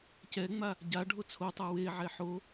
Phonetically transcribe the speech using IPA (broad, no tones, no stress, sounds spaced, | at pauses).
c ɛ ŋ͡m a | ɟ a ɖʱ o t͡sʰ o tˤ a w e ʕ ɛ ħ o